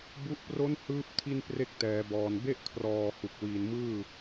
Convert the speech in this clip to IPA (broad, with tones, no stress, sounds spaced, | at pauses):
b u˦˥ ʔ p r o˦˥ n h ɯː˦˥ p̚ tʰ i˥˩ n p r e˥˩ k̚ t ɛː˩˦ b ɔː˨˩ n b e˥˩ ʔ kʰ r ɔː˨˩ h u˨˩ k̚ w iː˨˩ n m ɯː˥˩